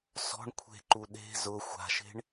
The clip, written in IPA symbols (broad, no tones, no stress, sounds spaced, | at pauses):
s ɔ̤ ɳ kʷʰ e̤ ǃ u ɗ e̤ z ʊ xʷ a̤ ʃ e̤ ɳ